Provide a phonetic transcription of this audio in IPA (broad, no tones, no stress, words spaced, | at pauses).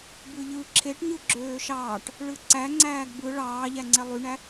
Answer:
bɯʎɯ ǁʰeʈɲɯ ɡ͡ǁøːʃɑːʈ | ɭɯǀæ ŋ͡ǀæːɡbɯ ɭɑːʎæŋ͡ǀe lˠyɳæ